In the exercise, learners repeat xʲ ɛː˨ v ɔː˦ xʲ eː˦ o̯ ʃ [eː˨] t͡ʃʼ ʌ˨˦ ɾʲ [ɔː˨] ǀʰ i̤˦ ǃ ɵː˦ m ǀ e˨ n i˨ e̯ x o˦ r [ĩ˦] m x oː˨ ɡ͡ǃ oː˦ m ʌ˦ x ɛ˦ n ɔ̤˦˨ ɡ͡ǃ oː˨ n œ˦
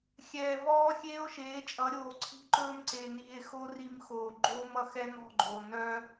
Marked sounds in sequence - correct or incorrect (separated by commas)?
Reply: incorrect, incorrect, incorrect